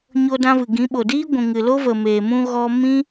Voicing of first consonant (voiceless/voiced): voiced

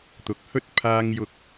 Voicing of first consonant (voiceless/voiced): voiceless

